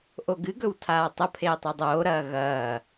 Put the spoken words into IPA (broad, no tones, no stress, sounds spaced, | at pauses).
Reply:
ʔ o ɡ ɨ ɡ ɵ w tʰ aː tˤ ɐ pʰ eː tˤ e dˤ oː ɾ ɐː ɣ ɐː